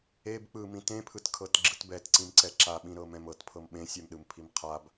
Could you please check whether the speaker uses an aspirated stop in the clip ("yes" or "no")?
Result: yes